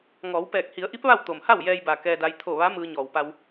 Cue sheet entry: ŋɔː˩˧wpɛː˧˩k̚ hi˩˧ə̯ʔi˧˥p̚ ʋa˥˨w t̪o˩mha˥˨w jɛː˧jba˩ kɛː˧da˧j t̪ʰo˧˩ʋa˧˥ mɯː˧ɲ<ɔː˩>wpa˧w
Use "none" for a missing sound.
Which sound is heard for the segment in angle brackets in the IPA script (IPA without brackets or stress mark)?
ɔː˩